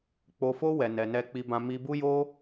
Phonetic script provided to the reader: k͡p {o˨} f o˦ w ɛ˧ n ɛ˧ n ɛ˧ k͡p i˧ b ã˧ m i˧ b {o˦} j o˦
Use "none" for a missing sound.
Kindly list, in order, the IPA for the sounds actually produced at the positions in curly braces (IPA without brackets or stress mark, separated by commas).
o˧, u˦